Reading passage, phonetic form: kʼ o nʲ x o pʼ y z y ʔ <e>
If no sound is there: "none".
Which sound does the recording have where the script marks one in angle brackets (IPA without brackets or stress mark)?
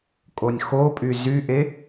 e